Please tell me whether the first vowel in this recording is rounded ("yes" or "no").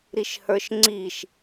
no